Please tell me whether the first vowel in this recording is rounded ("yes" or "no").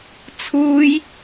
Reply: yes